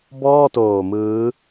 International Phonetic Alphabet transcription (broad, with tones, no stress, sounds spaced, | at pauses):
b ɔː˥˩ t oː˨˩ m ɯː˦˥